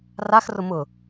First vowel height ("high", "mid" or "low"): low